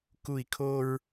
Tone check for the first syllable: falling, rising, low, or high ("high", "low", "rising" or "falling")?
falling